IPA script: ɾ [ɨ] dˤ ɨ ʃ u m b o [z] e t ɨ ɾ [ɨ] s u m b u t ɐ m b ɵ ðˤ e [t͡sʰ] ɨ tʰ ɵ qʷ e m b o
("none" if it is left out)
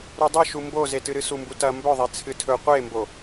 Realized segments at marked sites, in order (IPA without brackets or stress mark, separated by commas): ʉ, z, ɨ, t͡sʰ